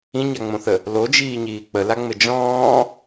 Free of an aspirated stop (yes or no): yes